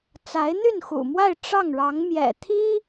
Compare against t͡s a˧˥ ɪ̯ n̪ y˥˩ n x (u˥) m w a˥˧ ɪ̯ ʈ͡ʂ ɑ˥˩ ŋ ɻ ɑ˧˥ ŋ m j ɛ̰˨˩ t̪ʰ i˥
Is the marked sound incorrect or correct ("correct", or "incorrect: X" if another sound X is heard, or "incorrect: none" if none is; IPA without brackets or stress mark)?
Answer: incorrect: ṵ˨˩